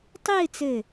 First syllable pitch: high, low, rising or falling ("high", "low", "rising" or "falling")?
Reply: falling